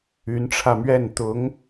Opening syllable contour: rising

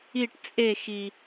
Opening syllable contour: falling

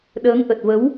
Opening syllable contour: rising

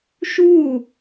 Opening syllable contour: falling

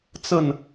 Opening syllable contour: falling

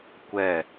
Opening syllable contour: falling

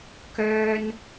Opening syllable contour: high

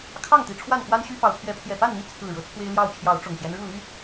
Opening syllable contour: falling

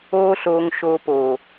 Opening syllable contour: high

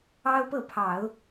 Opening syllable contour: high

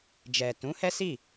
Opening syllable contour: low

